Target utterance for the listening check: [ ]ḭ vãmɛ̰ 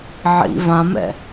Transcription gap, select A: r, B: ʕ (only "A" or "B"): B